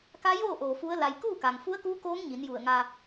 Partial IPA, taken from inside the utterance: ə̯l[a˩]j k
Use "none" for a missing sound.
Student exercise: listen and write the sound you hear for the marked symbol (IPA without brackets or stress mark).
a˧